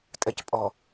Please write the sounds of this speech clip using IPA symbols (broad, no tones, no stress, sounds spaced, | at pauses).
tʼ ɛ c pʼ ɔ